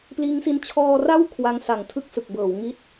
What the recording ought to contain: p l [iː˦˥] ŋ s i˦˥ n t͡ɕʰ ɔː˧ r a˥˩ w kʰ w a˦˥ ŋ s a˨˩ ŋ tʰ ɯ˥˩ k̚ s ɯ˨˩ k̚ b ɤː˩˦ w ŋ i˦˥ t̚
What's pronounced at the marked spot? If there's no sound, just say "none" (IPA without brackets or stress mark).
iː˦˥